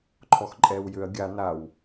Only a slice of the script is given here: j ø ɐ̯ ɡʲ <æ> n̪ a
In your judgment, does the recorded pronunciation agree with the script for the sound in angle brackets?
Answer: no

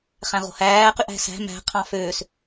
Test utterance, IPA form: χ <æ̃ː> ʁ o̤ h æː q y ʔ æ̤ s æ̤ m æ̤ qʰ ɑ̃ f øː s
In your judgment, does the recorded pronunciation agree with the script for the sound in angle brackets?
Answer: no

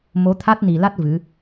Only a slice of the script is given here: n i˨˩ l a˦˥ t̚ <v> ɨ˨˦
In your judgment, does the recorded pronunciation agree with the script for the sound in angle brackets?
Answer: yes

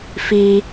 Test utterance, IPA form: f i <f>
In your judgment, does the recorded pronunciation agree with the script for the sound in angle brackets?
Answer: no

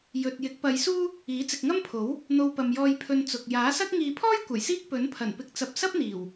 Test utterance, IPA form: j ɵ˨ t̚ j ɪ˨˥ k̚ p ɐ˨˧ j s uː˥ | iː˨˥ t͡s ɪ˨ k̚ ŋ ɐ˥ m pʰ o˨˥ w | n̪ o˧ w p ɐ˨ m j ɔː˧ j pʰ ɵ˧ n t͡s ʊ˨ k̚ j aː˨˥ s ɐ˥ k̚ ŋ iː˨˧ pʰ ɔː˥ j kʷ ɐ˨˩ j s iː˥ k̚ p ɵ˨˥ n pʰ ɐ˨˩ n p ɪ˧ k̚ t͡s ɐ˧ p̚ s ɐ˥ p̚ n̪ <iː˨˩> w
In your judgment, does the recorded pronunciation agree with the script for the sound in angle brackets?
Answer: yes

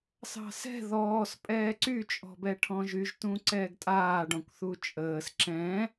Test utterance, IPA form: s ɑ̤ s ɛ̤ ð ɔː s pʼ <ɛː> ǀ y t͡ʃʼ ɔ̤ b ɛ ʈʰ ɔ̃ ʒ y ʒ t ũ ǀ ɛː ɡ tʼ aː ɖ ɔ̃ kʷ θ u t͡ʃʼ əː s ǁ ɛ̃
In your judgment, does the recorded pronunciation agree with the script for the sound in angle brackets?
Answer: yes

